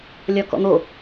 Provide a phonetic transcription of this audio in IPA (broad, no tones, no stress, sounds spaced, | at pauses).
lʲ ɒ k ɔ̰ n̪ o